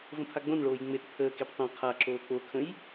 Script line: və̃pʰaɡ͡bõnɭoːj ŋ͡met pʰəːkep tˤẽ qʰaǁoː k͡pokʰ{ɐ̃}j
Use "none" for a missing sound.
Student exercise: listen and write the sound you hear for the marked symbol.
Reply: ə̃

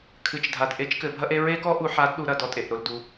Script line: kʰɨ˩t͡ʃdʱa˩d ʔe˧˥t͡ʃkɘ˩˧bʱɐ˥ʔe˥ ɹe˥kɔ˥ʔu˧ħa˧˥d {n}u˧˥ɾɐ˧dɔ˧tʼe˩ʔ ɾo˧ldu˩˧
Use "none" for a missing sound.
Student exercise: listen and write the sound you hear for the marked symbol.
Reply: ɗ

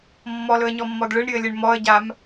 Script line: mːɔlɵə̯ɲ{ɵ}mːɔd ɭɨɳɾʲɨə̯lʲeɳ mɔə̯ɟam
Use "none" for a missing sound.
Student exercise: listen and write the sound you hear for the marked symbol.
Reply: ɔ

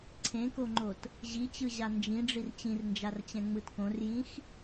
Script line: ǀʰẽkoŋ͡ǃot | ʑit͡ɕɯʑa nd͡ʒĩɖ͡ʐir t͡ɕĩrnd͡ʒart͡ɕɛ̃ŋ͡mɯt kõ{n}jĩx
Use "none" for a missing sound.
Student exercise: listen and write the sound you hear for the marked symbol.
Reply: r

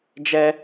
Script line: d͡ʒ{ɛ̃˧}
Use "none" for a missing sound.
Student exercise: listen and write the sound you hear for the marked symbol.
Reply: ɛ˧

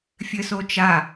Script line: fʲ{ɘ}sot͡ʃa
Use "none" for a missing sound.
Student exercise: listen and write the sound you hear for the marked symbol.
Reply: ɘ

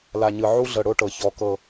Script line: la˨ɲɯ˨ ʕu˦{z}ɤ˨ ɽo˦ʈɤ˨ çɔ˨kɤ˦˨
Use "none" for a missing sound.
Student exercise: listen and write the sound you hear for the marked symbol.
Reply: ɮ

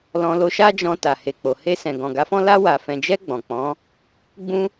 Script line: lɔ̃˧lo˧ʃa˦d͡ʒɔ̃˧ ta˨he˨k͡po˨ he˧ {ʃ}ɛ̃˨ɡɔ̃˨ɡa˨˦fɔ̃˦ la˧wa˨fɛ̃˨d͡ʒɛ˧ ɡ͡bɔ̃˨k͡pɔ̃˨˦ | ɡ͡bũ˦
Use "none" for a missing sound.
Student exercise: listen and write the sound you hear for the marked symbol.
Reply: s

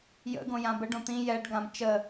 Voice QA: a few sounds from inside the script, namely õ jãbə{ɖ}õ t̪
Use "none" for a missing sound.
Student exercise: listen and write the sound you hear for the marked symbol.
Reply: ɖ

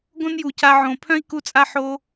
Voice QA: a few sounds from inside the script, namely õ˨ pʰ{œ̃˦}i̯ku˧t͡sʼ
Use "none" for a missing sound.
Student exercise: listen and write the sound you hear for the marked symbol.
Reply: œ̃˦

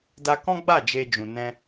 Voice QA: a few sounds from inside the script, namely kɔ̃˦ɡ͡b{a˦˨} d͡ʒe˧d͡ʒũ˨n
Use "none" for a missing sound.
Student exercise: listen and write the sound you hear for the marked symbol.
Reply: a˦˨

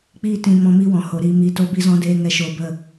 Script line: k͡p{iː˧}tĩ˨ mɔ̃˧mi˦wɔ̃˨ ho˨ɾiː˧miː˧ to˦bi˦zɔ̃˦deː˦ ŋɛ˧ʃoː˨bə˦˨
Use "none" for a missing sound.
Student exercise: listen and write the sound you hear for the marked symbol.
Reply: iː˧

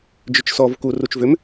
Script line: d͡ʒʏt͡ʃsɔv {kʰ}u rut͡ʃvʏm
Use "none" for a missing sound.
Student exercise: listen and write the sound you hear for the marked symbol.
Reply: k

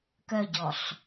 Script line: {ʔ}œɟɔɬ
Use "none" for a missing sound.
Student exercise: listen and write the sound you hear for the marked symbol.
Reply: k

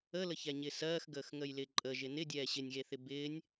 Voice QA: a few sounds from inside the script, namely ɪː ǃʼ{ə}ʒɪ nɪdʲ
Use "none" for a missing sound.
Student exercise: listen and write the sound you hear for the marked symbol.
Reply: ə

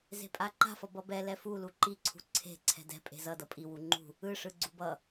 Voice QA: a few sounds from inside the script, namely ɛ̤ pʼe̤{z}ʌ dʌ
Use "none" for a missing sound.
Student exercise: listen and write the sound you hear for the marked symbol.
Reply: z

